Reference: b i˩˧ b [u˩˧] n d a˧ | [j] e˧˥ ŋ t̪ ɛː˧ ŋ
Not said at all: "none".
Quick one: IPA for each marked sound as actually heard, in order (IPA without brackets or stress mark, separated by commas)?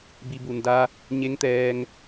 u˩, ɲ